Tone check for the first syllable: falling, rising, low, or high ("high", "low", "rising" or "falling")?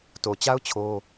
low